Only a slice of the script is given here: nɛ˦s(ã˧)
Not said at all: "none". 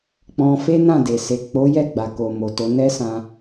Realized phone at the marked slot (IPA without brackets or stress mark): ã˧